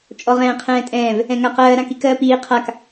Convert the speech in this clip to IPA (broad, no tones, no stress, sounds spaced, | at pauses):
t͡ʃʼ ɔ ʁ ɛ̃ː qʰ ɛ̃ː tʼ ɛ̃ː v | ɛ̃ ŋ a q ɜː ɾ ã k i k ɜː p iː qʰ a k